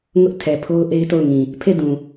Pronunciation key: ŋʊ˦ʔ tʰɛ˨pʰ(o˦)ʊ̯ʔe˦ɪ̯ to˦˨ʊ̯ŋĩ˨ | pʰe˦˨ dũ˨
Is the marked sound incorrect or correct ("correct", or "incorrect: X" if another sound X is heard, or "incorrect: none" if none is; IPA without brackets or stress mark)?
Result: correct